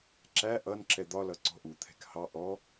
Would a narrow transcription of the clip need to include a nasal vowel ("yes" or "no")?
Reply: no